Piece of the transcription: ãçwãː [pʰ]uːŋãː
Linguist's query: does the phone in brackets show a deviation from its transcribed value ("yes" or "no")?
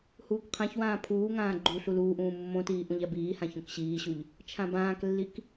no